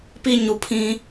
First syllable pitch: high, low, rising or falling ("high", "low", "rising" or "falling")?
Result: high